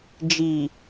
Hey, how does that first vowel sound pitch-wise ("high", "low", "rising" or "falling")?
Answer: low